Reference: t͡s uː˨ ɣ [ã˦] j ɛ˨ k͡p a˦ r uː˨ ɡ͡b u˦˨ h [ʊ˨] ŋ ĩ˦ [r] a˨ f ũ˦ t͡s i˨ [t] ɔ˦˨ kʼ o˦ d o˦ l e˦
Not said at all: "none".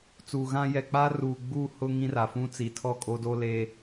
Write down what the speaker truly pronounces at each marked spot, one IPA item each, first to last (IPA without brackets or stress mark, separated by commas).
ã˦, ʊ˦, r, tʰ